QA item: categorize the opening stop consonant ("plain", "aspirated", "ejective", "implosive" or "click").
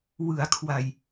aspirated